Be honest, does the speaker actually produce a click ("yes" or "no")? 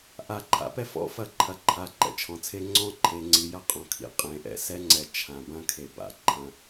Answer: yes